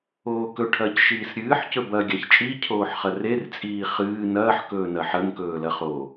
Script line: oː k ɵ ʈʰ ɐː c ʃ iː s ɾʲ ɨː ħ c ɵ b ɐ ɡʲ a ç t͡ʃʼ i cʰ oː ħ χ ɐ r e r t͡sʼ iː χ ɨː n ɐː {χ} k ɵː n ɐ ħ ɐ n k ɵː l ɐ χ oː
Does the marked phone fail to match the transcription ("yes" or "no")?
yes